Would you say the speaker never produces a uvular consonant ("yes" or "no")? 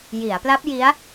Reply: yes